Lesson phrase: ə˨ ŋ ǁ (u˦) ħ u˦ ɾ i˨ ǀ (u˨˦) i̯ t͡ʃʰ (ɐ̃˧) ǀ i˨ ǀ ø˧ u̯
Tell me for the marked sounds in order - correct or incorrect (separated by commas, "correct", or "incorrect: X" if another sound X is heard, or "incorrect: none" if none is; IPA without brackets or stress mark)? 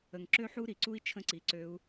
incorrect: ø˦, incorrect: u˦, incorrect: ə̃˧